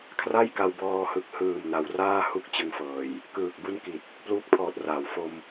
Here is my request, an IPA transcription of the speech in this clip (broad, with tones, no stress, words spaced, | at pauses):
kʰra˥˩jka˧w bɔː˧ hɯ˨˩k̚hɯː˨˩m na˩˦wraː˥˩hu˥˩k̚ t͡ɕɯ˦˥ŋfɤː˨˩j | kɯː˨˩k̚bu˥˩n ki˨˩t̚ | pluː˦˥k̚pʰɔː˨˩t̚raː˩˦w fo˧m